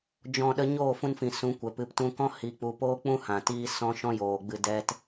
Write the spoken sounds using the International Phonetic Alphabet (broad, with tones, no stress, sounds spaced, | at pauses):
d͡ʒ ɔ̃˧ ɗ ə˧ ɲ oː˦˨ f ũ˧ n f ĩ˨ s ũ˨˦ kʷ ɛ˨ p ɨ˨ p t ũ˧ k ɔ̃˦ h i˨ k͡p u˨ p oː˦ k͡p ũ˦ h ã˨ t iː˦ s ɔ̃˦ ʃ ɔ̃˦ j oː˨ ɡ͡b ɨ˧ d ɛ˦ t